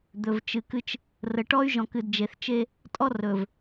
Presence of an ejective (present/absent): present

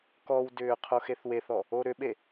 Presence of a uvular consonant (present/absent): present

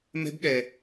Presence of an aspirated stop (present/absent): absent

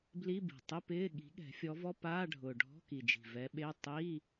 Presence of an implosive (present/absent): present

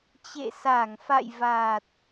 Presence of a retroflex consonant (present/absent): absent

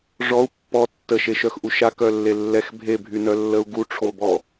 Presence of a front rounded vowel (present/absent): present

